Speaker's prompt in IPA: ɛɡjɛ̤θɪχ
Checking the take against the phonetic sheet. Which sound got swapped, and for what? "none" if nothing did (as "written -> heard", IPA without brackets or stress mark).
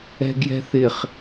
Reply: ɛ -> ɛ̤